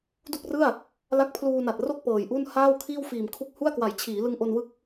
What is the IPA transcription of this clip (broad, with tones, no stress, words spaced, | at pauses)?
du˥˩k̚rɯ˥˩a̯ | la˦˥k̚pʰluː˧na˨˩t̚ro˥˩k̚ pɤː˨˩jʔu˥˩n haː˥˩wkʰiː˥˩wfiː˨˩m kʰu˦˥k̚hu˥˩a̯kwa˨˩j t͡ɕʰiː˩˦ lɯ˧ŋʔo˧nwɯ˦˥k̚